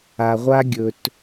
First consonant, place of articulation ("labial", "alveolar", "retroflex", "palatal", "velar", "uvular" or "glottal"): uvular